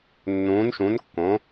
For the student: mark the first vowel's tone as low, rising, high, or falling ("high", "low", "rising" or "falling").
rising